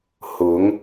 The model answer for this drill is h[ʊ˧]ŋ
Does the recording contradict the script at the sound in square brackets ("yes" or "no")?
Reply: yes